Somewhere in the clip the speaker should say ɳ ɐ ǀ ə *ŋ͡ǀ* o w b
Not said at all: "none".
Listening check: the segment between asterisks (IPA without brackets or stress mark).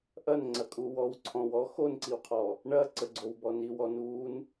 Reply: ɡ͡ǀ